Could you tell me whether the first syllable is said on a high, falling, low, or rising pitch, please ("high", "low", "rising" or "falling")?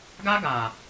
high